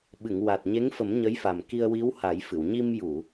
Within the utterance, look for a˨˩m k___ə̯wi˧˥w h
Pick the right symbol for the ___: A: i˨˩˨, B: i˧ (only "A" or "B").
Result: B